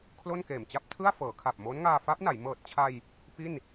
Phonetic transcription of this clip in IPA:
kʰ l o˥˩ n k eː˨˩ m t͡ɕ a˥˩ p̚ tʰ ɯ˥˩ a̯ f ɤː˩˦ kʰ a˨˩ p̚ m o˦˥ n ŋ aː˧ f a˦˥ p̚ n a˩˦ j m ɤː˨˩ t̚ t͡ɕʰ a˧ j | p i˥˩ n

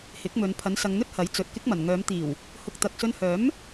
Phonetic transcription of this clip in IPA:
h ɪ˨˥ k̚ m ɵ˨˧ n pʰ ɐ˨˥ n s ɐ˨˧ ŋ n̪ ɵ˥ t̚ h ɐ˨˥ j t͡s ɵ˨ t̚ k ɪ˥ k̚ m ɐ˨ n ŋ œː˨˧ m t̪ iː˨˩ w | h ʊ˧ k̚ t̪ ɐ˨ k̚ s ɵ˧ n h œː˨˥ m

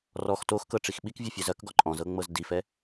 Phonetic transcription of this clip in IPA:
r ɔ x t o x k ɤ ʈ͡ʂ i x ɓ i k vʲ ɛ fʲ œ z ɐ k ɡ ɔ ǃʼ ɔ̃ z ɤ ŋ͡m ɤ z d i f ɛ

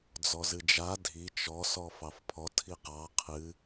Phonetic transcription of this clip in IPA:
d͡z ɔ z ɨ d͡ʒ a dʱ i t͡ʃ ɔ s ɔ f ɑ f pʰ ɔ tʰ i q ɑ qʰ ɨ

